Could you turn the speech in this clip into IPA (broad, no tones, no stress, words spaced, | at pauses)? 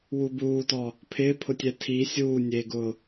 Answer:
wubuːtɔ | pʰɪːpʰʊtʲɛ tʰi sʲuːnʲeːɡʊː